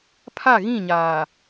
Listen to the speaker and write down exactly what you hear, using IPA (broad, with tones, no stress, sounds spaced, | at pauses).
pʰ a˦˨ ɣ ĩ˦˨ ɲ aː˨